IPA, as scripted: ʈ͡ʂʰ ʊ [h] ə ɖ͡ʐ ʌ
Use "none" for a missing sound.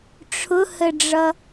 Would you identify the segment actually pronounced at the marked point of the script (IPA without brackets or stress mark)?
h